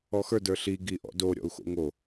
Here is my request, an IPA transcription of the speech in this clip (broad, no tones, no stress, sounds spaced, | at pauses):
ɔ x ə˞ d ə˞ ɬ i ɡ i ʔ ɔ̰ d o ɾʲ ɔ̰ u̯ x o̰ ŋ o